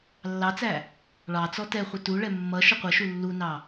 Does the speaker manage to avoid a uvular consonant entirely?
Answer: no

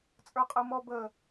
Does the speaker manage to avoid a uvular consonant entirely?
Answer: no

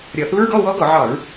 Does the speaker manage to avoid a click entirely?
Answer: yes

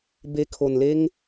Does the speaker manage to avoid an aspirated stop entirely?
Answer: no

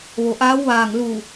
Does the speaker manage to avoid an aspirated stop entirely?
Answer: yes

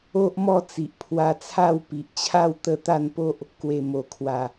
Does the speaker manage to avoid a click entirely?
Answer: yes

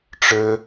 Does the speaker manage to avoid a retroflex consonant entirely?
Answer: no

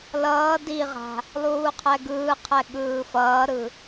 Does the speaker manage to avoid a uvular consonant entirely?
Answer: no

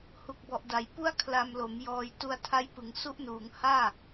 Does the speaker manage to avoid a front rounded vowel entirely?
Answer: yes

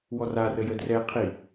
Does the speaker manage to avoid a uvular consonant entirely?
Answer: no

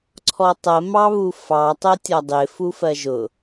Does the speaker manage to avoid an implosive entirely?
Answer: yes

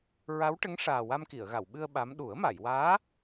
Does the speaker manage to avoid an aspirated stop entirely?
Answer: yes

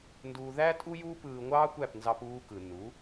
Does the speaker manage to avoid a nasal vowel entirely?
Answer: yes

